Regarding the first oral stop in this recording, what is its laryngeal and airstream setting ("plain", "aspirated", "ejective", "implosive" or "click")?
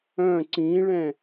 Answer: click